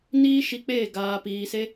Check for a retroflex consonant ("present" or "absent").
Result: absent